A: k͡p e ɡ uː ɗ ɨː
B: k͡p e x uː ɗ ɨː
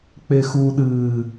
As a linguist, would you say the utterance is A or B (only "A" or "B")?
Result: B